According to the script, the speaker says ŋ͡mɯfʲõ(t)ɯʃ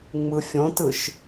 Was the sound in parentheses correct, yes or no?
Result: yes